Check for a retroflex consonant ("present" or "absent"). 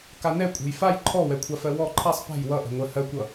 absent